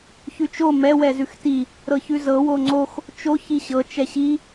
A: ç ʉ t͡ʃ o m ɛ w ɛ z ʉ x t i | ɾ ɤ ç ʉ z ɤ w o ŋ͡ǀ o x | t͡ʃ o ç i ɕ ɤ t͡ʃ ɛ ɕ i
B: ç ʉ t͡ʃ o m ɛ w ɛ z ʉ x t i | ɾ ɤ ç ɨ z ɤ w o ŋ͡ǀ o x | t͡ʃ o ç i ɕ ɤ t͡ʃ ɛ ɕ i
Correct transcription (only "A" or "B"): A